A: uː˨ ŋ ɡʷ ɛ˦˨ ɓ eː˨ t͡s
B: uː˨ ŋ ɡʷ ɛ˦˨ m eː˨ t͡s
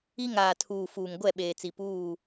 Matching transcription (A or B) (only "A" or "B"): A